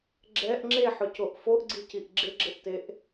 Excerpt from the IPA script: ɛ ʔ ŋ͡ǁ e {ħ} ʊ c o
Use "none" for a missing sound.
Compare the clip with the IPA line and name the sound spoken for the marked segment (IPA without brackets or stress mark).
ħ